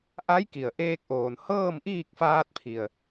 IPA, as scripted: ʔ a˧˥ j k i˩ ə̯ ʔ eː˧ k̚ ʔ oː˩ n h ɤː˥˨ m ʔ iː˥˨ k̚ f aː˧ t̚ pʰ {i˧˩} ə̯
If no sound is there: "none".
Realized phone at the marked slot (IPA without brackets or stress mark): i˩